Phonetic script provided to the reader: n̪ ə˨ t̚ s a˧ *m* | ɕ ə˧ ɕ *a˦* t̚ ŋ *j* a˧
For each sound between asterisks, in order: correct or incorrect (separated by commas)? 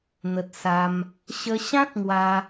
correct, incorrect, incorrect